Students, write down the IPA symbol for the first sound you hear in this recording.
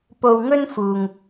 p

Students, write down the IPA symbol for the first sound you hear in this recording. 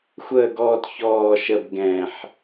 xʷ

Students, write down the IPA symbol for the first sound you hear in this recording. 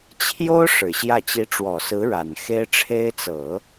t͡ɕʰ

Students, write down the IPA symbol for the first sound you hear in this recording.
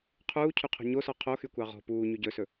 qʰ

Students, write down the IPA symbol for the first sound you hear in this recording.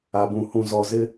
a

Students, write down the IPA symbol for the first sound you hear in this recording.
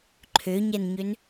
ǃʰ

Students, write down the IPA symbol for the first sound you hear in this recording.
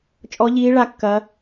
t͡ʃʼ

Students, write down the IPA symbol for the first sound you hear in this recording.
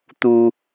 t̪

